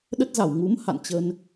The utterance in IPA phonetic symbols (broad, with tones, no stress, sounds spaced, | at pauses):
ɗ ə˦˥ t̚ z a˧˩ w ŋ u˨˦ m h a̰˧˨ n t͡ɕ ə˧ n